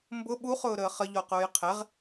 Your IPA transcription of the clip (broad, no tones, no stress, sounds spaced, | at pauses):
m b ʊ ɓ u χ ʊː ɾ əː χ ə ʎ ɔ q ʊː j qʰ ɛ ʁ